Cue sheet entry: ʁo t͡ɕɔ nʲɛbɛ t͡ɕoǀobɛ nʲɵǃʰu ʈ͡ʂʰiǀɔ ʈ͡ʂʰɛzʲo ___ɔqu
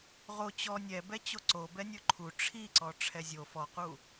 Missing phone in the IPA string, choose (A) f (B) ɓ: A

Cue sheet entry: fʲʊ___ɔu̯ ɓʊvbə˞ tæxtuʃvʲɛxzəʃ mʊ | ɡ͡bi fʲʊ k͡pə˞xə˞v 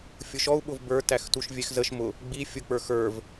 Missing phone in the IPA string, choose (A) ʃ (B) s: A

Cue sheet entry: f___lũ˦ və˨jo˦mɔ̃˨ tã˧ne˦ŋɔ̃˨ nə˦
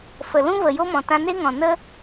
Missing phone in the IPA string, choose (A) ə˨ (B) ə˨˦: A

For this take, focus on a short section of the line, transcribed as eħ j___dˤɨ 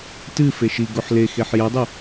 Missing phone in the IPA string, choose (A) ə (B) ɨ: A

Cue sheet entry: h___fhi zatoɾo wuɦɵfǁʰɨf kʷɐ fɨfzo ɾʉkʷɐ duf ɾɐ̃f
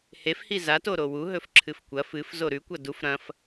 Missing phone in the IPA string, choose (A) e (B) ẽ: A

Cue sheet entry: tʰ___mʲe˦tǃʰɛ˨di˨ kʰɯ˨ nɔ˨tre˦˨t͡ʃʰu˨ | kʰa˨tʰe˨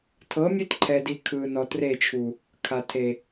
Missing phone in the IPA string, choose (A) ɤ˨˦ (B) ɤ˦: A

